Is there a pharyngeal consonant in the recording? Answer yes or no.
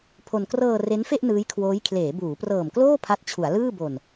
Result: no